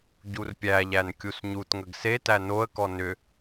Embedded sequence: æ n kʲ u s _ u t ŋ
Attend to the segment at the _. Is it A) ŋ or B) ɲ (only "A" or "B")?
B